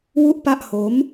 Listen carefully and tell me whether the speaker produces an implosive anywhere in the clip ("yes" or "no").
no